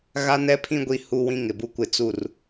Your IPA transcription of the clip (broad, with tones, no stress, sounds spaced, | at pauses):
ɣ a˦ n ɛ˦ pʰ ĩ˦ ɡʷ i˦ h u˦ w ĩ˦ ŋ ɪ˨ b u˦ kʷ ɪ˦˨ t͡s u˦˨ r